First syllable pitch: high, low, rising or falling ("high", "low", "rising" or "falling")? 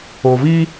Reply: low